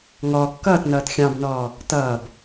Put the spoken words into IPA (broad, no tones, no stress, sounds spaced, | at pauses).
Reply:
ŋ ɔ kː ʌː t n ʌː t xʲ ɑ̃ b n ɔː | t ʌː b